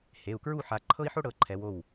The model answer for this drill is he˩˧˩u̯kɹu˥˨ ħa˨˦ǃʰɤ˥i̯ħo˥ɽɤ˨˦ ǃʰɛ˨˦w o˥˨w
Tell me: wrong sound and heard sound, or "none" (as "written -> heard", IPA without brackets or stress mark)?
none